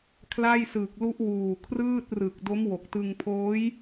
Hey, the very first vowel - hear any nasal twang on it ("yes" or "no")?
no